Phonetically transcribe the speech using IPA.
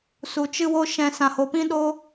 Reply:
su˧ t͡ʃɨ˦wo˦ ʃɛ̃˧ sã˧ho˧pĩ˦ ɗo˦

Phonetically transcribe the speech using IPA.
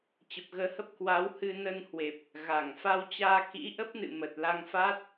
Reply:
t͡ɕə˨˩p̚ɣəː˨˦hə˦˥p̚ kwa˨˦whɨ˧ nə˧nhwe˨˩p̚ | ɣa˧˩ŋ fa˧wt͡ɕaː˧ kḭ˧˥ ʔə˦˥p̚nɨ̰˧˨ mə˨˩t̚la˧ŋfa˦˥t̚

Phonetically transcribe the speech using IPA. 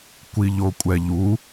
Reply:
kʷiʎokʷʼɛʎu

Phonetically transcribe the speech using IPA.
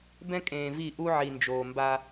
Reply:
bɛ̃˦kʼẽː˨vi˦˨ ʔu˦ ʕi˨nd͡ʒoː˨mba˦

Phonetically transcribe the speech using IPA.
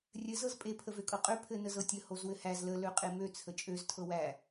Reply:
rʲɘ zɤzpʼe pʰəvøkʼɤqʼø pʰɘ nəzɤtʲə hozwɘhæz lə løqʼemø t͡sʰət͡ʃʼøz tʰɤwæ

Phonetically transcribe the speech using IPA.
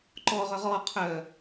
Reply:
ǃɔʁœʁ ɔ qʰœ

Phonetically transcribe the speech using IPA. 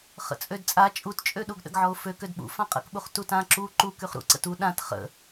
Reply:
χə̰t͡sʼødt͡sʼa t͡ʃʼutt͡ʃʼøɗuɡ ɗə̰ɡʕɔʊ̯fø kødɓṵ fãqʼə̰kɓuχ tutã ǁu ǃu kyχɾṵ ǀə̰tu ɗãt χə̰

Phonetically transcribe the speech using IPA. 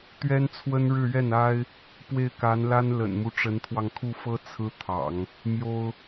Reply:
t̪ɥɛ˥nt͡sʰwə˥nɻɻ̩˥˧ɥɛ˥˩n a˥ɪ̯ | pwe˥˩ɪ̯ka˧˥nla˥n lə̰˨˩nmu˦ ʈ͡ʂə˧˥nt̪ʰwɑ˧ŋkʰu˥˩fɤ˥ t͡sʰɹ̩˥t̪ʰɑ̰˨˩˦ŋ | mjo˥ʊ̯

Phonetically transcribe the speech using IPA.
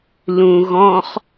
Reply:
lũ ɣɔ̃χ

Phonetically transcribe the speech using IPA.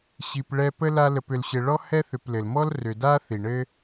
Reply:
ɕi˨pɭɛ˦pə˥la˦ lə˨p ʏ˨lɕɘ˨ɭɔ˥ hɛ˥ θʏ˨plɘ˩lmɔ˥l rʏ˨ da˥θi˩ɳɘ˦

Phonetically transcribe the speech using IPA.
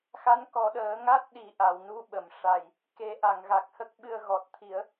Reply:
xa˧˥nkɔ˨˩˦ɗəː˨˩˦ ŋa˦˥t̚ɗi˨˩˦ʔa˨˩˨w nu˧ɓə˨˩˨m ʂa˨˩j | ke˨˩˦ʔa˨˩˨ŋ ɣa˨˩k̚hə˦˥k̚ɓɨ˧ə̯ ɣɔ˨˩t̚t̪ʰi˨˩˦ə̯

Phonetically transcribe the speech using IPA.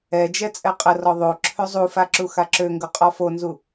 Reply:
ɛd͡ʒɛ t͡sʼɛqʼərɔ ðˤo ǁʰøzˤufa ǁuxaǁøŋɡʊ qʼɔfonzu

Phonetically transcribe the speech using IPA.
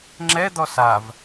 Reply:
ŋ͡ǁɛd̪ɔ sav

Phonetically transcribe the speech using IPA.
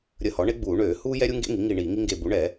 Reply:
ɾʲə˧˩˧hɔ˩˥ɳe˥ɡ͡buː˧˩˧ ɳøː˧˩˧huː˥ jɛ˥ɾʲu˥ŋɡḛ˥ŋi˩˥ ŋi˦˨ ɳiː˧˩˧ŋi˥ŋɡe˦˨ bu˩˥ɳɛ˧˩˧

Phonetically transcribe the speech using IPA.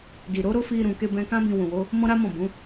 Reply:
di˨ɾo˨˦ ɾo˦fi˧ ɾũ˨ke˧bɛ̃˧kã˦ bĩ˧ wũ˨wo˨˦ | mɔ̃˦ɾa˦mɔ̃˦˨ bũ˨˦

